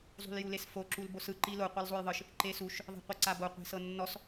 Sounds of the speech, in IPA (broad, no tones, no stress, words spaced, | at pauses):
zˤṳljulesfo ǁulbosɯ ǃilo qʷɤlzˤojðˤɯʃ | ǃesuʃ | ðˤe̤qʷeǀabo qʷe̤sɤnːɔs